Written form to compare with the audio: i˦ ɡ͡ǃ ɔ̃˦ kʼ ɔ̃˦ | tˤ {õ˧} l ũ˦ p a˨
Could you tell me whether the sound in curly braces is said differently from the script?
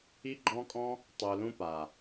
yes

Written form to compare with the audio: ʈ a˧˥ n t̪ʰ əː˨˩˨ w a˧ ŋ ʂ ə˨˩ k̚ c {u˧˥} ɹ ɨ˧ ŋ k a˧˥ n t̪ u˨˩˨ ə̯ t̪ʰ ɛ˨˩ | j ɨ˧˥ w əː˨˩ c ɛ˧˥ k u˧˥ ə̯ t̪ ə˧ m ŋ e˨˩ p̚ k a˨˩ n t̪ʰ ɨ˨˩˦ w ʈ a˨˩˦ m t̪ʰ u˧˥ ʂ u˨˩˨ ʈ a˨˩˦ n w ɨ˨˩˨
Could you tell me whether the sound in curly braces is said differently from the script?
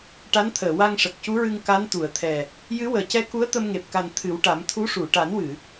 no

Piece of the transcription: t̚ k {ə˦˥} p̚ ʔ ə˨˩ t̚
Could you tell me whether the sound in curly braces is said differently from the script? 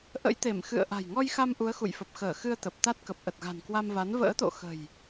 yes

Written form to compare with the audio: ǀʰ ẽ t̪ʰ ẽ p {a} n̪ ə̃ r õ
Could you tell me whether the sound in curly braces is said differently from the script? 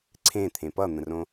yes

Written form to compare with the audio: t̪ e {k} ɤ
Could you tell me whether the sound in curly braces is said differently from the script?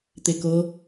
no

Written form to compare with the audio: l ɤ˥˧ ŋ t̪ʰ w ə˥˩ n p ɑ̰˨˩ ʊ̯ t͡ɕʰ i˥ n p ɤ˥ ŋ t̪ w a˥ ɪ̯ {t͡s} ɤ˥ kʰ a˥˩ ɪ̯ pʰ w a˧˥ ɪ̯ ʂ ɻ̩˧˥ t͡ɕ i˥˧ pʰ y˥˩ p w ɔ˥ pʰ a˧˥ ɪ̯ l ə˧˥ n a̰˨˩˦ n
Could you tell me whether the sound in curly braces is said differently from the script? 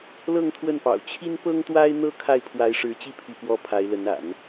yes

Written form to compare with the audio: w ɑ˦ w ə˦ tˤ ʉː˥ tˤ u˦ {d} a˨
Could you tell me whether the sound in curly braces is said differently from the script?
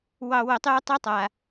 yes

